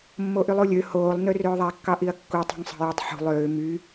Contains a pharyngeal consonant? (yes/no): yes